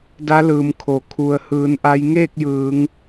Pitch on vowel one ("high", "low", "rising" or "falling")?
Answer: rising